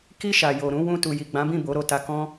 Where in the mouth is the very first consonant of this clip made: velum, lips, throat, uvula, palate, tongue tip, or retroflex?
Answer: velum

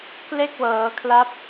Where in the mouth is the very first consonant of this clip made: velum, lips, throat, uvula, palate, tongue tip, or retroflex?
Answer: velum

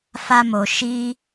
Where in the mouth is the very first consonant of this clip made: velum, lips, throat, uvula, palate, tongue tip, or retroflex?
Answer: lips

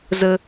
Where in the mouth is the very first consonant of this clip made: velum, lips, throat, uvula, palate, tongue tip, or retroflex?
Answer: tongue tip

